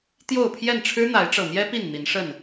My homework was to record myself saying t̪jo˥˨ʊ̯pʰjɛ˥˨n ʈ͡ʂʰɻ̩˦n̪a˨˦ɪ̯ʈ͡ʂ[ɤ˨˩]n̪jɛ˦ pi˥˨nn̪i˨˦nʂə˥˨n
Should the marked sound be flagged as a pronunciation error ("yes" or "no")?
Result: no